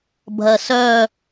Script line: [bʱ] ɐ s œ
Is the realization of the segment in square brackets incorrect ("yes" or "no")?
no